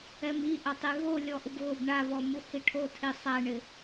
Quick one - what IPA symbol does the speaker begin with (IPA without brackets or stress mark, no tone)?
ɛ